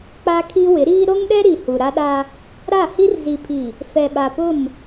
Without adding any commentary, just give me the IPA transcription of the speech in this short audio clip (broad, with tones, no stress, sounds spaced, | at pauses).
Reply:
k͡p a˦ kʰ i˦ w ɪ˨˦ ɾ iː˦ ɾ o˦ ŋ ɗ ɛ˦ ɾ i˨ h u˨ ɾ a˦ ɗ a˦ | ɾ a˦˨ h i˦ r z i˨ pʰ i˨ | f ɛ˨ ɓ a˨ p ʊ˦˨ m